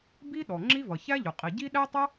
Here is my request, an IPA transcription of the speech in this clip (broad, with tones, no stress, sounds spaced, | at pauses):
b i˥ ɗ ɔ˩ ŋ͡ǁ i˥ v ʌ˩ ç æ˥ ʎ ʊ˩ qʼ i˩ ɟ i˥ ɗ æ˥ tˤ ʌ˥